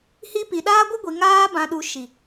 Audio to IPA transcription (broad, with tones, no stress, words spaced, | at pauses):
hi˧pi˨ɗaː˦ ɡʷə˦ɡʷi˨ŋaː˧ bã˨ɗu˨ ʃi˨